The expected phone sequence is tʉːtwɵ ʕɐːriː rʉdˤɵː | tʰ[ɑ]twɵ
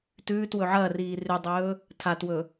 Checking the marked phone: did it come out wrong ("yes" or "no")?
yes